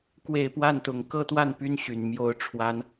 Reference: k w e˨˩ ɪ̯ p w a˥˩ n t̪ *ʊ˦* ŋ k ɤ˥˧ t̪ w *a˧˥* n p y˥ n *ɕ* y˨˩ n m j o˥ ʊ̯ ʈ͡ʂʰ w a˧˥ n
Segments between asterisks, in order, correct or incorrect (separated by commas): incorrect, incorrect, correct